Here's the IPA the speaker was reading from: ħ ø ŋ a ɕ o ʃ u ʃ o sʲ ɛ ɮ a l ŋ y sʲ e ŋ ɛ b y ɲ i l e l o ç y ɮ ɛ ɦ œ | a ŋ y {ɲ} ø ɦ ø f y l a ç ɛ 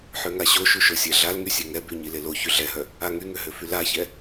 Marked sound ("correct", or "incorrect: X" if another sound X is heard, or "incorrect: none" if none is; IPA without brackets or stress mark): incorrect: ŋ